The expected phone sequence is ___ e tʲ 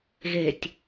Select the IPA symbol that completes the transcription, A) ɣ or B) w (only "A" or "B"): A